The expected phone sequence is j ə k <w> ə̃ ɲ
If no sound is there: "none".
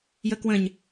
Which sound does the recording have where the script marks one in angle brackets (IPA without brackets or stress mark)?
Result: w